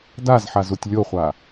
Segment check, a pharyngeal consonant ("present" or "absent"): present